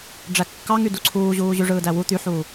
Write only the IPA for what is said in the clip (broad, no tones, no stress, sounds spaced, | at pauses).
ɖ͡ʐ æ kː ɑ ŋ y d u ǀʰ uː ʑ uː ʑ y ʐ ɯː d æ w u t̪ y ħ uː